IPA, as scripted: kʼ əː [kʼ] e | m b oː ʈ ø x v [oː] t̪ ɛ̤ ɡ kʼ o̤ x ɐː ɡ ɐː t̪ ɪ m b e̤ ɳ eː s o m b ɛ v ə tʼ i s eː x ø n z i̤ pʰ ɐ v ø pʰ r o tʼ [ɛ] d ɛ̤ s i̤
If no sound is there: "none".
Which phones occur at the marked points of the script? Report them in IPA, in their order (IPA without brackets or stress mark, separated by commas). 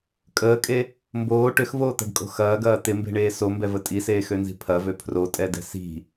kʼ, oː, ɛ